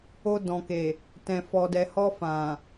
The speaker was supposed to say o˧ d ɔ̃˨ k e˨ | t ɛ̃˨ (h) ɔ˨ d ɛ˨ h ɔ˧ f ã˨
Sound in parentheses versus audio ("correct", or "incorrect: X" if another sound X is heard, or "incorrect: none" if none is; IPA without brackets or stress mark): incorrect: f